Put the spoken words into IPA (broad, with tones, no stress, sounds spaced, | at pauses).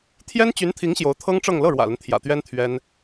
t̪ʰ j ɛ˥ n t͡ɕ y˧˥ n t̪ʰ i˧˥ ŋ ɕ j o˧˥ ʊ̯ t̪ʰ ɤ˥ ŋ ʈ͡ʂ ɤ˥˧ ŋ l ɤ˥˩ ɻ w ä̰˨˩ l ə˦ n t̪ʰ j ä̰˨˩ t̪ ɥ ɛ˥ n t̪ʰ ɥ ɛ˥ n